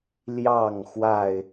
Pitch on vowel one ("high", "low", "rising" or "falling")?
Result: falling